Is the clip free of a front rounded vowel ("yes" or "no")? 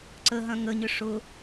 no